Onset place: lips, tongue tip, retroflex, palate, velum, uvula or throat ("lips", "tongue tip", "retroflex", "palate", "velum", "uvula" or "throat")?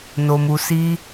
tongue tip